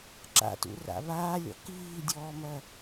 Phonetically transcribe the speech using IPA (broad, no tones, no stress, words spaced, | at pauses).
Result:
ǁa̰tṵra̰ βaːlʲɔ̰ kiːdʲɔːmɐ